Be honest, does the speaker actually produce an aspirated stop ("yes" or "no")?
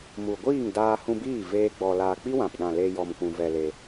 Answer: no